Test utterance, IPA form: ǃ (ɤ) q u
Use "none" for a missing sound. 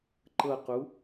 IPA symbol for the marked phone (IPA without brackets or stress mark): ɤ